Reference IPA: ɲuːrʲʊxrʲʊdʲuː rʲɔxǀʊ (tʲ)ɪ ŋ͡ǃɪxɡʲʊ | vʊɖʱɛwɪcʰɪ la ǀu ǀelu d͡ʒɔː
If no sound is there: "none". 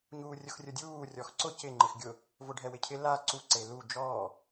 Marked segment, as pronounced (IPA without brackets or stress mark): c